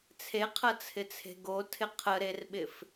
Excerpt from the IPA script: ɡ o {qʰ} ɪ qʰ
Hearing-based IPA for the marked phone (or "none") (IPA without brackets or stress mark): tʰ